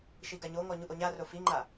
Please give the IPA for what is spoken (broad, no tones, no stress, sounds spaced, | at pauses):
ʃ i ɡ a ɲ o ŋ ɔ ɲ u ʔ o ɲ a r o f i ŋ͡ǃ a